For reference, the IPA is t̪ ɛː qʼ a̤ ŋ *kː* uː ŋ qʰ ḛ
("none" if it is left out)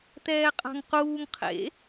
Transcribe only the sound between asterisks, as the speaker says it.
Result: q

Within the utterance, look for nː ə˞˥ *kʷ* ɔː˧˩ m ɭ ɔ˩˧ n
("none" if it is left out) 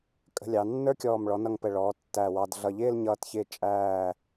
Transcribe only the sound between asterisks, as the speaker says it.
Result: kʲ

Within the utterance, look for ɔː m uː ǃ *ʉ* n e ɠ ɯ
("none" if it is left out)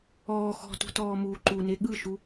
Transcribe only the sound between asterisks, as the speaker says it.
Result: u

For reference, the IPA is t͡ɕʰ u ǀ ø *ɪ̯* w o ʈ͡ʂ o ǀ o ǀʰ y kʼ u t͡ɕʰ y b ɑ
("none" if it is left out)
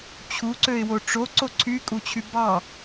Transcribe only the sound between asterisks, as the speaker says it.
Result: ɪ̯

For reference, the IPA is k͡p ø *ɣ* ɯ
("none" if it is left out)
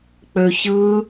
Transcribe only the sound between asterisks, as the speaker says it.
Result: ç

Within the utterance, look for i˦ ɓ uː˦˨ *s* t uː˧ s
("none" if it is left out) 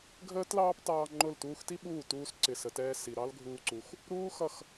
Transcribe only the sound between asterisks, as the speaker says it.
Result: none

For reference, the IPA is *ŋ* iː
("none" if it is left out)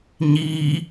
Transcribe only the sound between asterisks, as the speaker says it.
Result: ɲ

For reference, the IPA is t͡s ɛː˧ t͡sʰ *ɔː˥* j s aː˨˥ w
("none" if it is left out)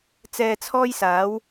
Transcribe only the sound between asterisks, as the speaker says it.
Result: ɔː˥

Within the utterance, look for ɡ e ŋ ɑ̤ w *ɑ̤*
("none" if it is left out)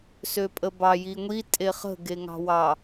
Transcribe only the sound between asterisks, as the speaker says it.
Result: ɑ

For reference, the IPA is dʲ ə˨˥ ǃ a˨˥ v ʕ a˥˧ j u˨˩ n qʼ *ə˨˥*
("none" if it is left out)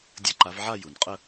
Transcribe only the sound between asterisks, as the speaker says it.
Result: ə˥˧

